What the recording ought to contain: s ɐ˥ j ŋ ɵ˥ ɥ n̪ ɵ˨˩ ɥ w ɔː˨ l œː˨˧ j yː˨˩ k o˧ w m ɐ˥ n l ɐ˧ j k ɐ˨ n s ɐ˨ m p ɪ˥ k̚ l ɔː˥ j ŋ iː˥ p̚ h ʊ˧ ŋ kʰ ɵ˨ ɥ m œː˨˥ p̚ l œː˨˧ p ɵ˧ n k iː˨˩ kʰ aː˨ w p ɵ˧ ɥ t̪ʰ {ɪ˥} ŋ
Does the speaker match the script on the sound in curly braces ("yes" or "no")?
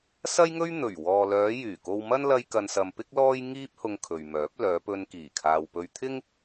yes